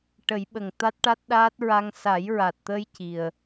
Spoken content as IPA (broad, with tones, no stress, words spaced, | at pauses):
ʈə˨˩˦jɓə˨˩ŋ t̪a˦˥t̚ʈa˦˥t̚ɗaː˦˥t̚ ɹa˧ŋ sa˨˩˦jɹa˨˩t̚t̪ə˧j ci˨˩ə̯